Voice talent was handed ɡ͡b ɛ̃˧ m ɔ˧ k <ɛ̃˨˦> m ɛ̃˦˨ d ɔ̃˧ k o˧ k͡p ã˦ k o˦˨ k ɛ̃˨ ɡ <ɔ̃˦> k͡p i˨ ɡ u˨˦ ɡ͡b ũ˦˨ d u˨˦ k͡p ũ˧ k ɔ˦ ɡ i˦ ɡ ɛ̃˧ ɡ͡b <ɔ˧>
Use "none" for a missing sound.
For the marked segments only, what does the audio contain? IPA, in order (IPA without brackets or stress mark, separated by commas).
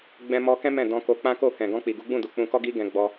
ɛ̃˦, ɔ̃˧, ɔ˧